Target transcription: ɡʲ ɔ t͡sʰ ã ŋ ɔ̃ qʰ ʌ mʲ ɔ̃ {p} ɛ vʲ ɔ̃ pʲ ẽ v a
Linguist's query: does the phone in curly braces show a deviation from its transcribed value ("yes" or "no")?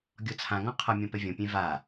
no